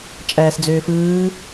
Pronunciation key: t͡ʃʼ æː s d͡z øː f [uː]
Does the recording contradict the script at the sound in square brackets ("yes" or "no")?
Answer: yes